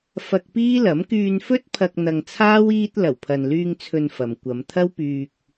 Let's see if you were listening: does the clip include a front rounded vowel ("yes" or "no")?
yes